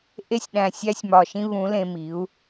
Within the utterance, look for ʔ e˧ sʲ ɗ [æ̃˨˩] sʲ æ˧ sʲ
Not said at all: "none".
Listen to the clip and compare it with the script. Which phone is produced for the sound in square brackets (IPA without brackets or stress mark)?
æ̃˨˩